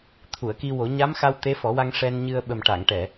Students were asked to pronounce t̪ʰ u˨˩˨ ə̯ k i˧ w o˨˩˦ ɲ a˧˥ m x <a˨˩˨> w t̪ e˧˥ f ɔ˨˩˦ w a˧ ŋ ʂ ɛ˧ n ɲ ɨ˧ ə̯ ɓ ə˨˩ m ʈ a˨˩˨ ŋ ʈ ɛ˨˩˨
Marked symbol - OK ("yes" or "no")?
no